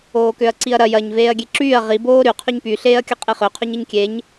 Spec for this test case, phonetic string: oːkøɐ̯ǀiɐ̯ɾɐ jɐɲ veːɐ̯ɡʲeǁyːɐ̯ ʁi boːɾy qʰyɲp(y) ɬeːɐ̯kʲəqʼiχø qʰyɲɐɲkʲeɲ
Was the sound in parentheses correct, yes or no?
yes